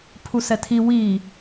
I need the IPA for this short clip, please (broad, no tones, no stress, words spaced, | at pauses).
pʰusɛtʰi wi